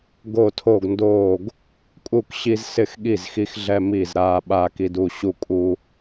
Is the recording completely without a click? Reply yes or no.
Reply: yes